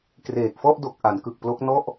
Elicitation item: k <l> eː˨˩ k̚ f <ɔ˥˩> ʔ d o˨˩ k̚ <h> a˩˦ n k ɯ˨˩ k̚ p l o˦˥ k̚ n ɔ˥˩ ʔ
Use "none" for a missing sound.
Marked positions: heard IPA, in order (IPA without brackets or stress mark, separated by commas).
r, ɔ˥˩, ʔ